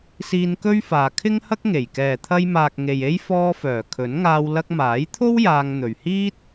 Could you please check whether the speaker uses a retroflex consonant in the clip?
no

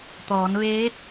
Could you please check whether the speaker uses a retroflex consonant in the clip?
no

